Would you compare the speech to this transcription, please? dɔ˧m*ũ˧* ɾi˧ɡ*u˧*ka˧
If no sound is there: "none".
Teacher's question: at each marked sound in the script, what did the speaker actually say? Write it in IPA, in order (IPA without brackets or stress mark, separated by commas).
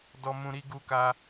ũ˧, u˧